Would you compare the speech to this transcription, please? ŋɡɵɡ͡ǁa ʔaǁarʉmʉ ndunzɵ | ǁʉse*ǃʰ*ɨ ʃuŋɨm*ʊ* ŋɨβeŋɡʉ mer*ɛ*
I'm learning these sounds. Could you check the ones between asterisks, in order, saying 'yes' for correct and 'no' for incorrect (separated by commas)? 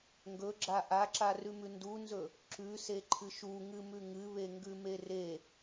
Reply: yes, no, no